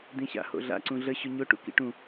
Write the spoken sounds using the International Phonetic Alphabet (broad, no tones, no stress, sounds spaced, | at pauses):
d̪ ĩ ɕ a̰ h o̰ ɮ a̰ ǀ ũ ɮ ə ɕ ʊ ɲ ʊ ʈ ṵ k ḭ ʈ ũ